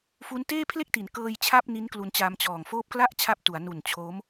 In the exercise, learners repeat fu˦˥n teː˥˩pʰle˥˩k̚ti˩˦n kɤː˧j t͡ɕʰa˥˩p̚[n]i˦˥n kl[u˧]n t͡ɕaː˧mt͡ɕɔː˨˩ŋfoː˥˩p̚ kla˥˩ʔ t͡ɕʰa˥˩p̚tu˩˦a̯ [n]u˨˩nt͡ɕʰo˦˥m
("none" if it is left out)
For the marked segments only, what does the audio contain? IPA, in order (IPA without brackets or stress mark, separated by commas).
n, u˧, n